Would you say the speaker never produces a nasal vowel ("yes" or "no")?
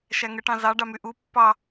no